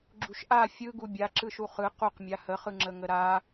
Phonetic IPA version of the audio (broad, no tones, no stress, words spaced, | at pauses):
ɡ͡ǁuʃʔa fʲɯɡu bʲaǁɯʃu χɯ quqmʲa həχɯŋ͡ǁə ŋəɾa